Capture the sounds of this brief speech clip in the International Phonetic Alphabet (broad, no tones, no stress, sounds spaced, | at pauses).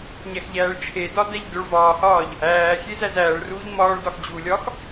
ɲ æ x ʎ æː ɭ t͡ʃʰ e d ɒ d æ ʎ d o ɭ v ɒː h ɒː ʎ | æː xʲ e z æ z æː ɭ r uː ʎ m ɒː ɭ d ɒ x d͡ʑ u lʲ ɒ x